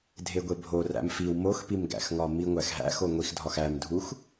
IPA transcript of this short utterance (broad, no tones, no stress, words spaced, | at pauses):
dʱeɡʷebʱo ræ̰mfiw moxpimɡæ̰xŋɒ miŋʷæxɦæ̰xo ŋʷixdʱɒx æmdʱux